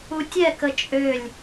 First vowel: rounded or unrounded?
rounded